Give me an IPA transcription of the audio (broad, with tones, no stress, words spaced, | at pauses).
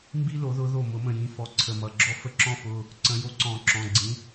mbi˦lo˨˩˦ðʊ˨˦ðo˧˩ mʊ˨˩˦mə̃˧˩jĩ˨˦fɔ˩˧˩ ǀʰə˧˩mʌ˩˧˩ɡ͡ǁɔ˦fə˦ ǁɔ̃˦fʊ˩˧˩ | ǀə̃˨˩˦jo˨˦ǀɔ̃˨˩˦ ǁɔ̃˩˧˩ɡ͡ǀĩ˨˦